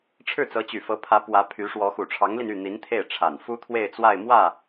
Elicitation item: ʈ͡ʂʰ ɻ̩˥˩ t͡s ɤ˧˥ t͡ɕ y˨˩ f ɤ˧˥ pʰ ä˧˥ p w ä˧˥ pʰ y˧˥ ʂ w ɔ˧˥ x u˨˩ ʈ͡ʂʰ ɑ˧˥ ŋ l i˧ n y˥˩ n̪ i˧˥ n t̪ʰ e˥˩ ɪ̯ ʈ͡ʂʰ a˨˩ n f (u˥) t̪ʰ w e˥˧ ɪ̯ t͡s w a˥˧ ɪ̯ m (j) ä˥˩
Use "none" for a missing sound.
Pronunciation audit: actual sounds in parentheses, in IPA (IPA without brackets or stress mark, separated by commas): u˥, w